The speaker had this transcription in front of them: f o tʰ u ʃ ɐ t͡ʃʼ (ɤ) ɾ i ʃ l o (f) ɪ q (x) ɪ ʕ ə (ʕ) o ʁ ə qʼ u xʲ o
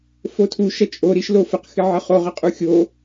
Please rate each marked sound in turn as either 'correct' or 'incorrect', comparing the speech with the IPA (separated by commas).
incorrect, correct, correct, incorrect